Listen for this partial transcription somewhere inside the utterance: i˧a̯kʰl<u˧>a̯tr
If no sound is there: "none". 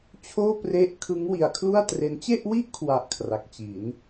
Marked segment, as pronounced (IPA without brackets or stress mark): u˥˩